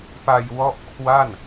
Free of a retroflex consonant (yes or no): yes